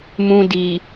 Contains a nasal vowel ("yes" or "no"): yes